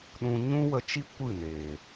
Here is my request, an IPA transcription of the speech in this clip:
ɗ ũ˧ ɲ ũ˦ w ə˧ t͡ʃ i˦ kʷ ɨ˦˨ n eː˨

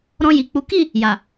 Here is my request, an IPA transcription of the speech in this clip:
ɾ ɔ̃˧ j i˨ k͡p u˨˦ k i˦˨ | j a˨

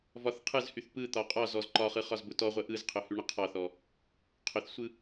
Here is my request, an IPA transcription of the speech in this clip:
v ɒ θ qʰ ɯ z h y θ p ɯ t̪ ɒ qʼ ɒ z ɔ z ǃ ɒ χ ɯ χ ɒ z b ʊ t ɔ ʁʷ ə ʔ ɯ z qʰ ʊ h y ɳ ə qʰ ɒ θ ɔ | qʰ ʊ θ sʷ ɯ

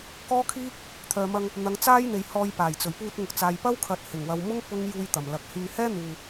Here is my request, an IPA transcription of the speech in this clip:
k ɔː˥ kʰ iː˥ | t̪ʰ œː˨ m ɐ˧ ŋ | n̪ ɐ˨˧ ŋ t͡s aː˥ j n̪ e˨ j h ɔː˧ j p aː˨˩ j t͡s ɵ˨˩ ɥ p uː˧ t̚ ŋ ʊ˨ k̚ t͡s aː˨ j p ɐ˥ w kʰ ɐ˨ t̚ h ɪ˨˩ ŋ w ɐ˨ w m ʊ˥ ŋ p ʊ˥ ŋ j uː˧ j t̪ ɐ˨˩ m l ɐ˨ k̚ h yː˧ h ɛː˥ n̪ uː˨

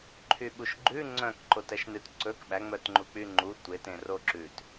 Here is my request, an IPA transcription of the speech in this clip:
ǃʰ y ɓ u ʃ ɡ͡ǃ ʉ ŋ͡ǀ œ̃ k ǃ o t ɛ ʃ n ʉ t ǀ ɵ k ɓ æ ŋ͡m œ t ŋ͡ǃ u k͡p y ŋ͡ǃ u tʷ e t ẽ r o ǁ ʉ t

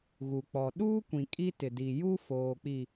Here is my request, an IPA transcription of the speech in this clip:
ɣ u˨ k͡p ɔ˨ ɗ uː˦ kʷ ĩ˨ kʼ i˦ t ɪ˨ d i˨ j u˦ f oː˨ k͡p i˨

